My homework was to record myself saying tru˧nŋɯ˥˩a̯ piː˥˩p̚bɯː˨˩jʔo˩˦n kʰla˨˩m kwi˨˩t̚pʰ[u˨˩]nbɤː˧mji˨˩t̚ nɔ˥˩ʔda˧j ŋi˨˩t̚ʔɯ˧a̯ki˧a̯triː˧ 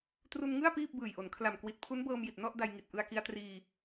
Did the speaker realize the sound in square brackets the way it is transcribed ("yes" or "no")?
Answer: no